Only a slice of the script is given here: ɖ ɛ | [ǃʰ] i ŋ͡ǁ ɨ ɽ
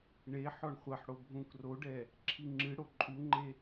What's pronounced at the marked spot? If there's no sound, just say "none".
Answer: ǁʰ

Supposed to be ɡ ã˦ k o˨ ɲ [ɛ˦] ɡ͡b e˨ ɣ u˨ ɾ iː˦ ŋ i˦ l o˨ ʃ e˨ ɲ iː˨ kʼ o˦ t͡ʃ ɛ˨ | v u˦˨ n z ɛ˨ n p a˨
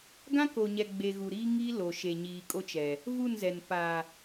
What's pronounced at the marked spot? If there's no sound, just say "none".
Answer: ɛ˨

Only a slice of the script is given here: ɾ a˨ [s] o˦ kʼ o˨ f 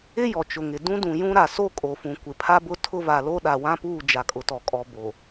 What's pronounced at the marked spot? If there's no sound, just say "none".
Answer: s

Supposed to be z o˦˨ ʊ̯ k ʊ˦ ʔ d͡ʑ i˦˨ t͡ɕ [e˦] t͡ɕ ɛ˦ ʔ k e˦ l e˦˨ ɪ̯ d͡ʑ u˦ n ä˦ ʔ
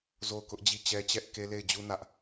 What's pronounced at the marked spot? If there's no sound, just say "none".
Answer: ɛ˦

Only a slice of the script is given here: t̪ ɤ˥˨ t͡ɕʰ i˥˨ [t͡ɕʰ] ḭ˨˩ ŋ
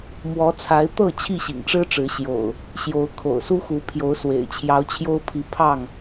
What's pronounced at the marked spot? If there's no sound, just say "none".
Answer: ɕ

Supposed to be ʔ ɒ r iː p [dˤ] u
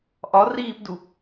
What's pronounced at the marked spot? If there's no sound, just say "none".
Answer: d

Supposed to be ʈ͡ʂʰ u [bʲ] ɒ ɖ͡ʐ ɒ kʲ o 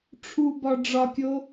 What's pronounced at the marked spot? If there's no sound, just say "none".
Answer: b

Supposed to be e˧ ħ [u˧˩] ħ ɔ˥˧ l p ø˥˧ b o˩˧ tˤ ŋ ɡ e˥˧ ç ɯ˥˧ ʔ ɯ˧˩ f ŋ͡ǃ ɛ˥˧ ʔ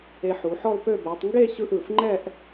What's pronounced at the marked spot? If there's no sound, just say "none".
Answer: u˩˧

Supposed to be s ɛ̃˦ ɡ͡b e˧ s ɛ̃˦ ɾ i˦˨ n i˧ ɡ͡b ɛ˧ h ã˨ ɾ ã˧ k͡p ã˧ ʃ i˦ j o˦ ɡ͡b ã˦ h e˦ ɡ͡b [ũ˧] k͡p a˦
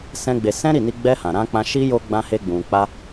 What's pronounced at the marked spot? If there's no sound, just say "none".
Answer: ũ˧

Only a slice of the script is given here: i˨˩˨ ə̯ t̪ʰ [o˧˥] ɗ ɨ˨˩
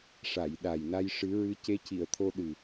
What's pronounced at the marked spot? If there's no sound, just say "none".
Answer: o˧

